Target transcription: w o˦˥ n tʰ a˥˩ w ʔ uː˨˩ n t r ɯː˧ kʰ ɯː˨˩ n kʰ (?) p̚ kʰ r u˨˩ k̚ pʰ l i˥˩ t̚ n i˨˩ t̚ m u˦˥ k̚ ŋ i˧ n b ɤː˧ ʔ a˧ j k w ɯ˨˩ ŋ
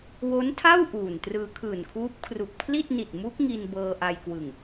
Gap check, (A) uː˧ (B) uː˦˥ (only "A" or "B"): B